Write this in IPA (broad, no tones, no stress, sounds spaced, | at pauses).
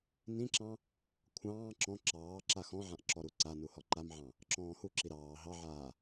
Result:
n ĩ ǁ ɑ̃ | kʷʰ ɑ̃ː ǁ ɔ̃ ǁ ɑː ǁ a x ɔ̃ ʕ ã ʔ ǁ ɔ ɾ u ǀ a n u h ɔ ǃ a m ʕ ɑ̃ | ǁ ɔ̃ː h u ǁ i ɾ ɑː ɦ ɑ ʕ aː